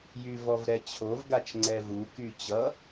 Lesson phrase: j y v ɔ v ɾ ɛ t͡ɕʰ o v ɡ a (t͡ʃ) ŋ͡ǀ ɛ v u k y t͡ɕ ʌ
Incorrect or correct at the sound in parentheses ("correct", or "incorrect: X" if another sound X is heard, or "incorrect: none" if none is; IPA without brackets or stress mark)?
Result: correct